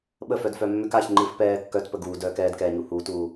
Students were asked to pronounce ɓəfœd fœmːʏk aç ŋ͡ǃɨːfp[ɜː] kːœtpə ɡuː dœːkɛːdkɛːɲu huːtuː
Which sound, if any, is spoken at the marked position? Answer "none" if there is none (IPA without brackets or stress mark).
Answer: ɛː